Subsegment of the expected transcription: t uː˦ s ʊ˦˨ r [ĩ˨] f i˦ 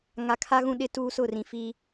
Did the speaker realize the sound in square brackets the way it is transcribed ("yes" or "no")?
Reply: yes